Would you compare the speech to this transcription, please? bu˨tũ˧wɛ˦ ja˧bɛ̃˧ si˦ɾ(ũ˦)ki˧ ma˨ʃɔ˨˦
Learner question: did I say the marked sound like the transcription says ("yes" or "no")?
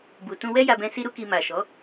no